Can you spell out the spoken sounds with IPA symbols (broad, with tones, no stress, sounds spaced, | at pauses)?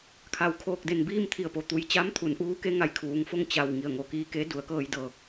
kʰ a˩ w kʰ oː˧˩ k̚ d e˧˩ n b iː˥˨ m t̪ʰ i˧˩ ə̯ p o˩ t̪ u˩ j t͡ɕ a˧˥ m t̪ʰ u˩˧ n ʔ uː˧˥ k e˧˥ ŋ a˧˩ j kʰ uː˩˧ ŋ f o˥˨ ŋ t͡ɕ a˧˩ w ŋ i˧˩ ə̯ ŋ o˩ k iː˧˥ k e˧˥ d u˩˧ ə̯ k ɤː˧ j d ɤː˧˩ k̚